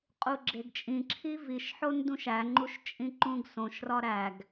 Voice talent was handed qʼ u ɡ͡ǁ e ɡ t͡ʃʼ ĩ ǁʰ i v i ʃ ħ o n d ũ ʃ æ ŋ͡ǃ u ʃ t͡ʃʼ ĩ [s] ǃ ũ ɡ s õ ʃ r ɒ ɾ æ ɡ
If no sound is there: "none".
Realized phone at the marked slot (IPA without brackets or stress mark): none